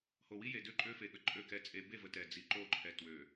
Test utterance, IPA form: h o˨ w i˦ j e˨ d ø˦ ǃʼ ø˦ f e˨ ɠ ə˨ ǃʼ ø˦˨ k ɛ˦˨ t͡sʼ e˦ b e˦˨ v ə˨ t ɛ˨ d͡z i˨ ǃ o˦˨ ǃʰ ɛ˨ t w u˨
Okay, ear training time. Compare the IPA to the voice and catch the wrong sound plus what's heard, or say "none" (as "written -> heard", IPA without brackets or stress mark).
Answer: u˨ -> ø˨